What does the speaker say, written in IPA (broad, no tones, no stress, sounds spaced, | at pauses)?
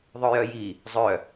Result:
ðˤ œ j œ j i | zˤ œ